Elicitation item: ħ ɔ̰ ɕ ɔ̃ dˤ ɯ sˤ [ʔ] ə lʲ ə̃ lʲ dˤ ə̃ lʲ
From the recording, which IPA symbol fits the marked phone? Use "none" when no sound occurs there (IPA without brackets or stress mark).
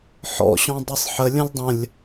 ħ